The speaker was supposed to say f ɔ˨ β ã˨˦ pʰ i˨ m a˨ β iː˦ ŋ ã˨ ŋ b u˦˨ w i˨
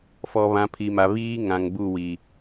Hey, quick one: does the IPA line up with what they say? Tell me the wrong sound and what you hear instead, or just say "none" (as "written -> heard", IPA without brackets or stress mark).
none